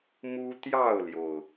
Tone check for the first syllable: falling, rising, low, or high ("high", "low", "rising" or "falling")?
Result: high